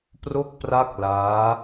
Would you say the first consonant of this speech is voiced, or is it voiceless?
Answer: voiceless